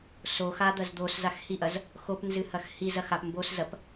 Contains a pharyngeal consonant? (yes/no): no